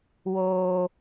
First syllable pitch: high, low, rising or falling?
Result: high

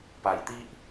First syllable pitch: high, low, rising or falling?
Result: low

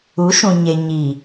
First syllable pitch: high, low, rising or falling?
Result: rising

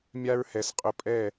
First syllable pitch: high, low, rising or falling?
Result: high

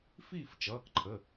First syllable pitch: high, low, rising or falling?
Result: falling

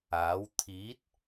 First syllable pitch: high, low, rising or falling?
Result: rising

